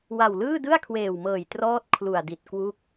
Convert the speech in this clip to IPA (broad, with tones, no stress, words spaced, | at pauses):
wa˨˩wlɯː˥˩ dɯ˥˩a̯kʰweː˨˩wmɤː˨˩j trɔː˥˩t̚ kʰlu˨˩a̯di˨˩t̚ kwu˦˥k̚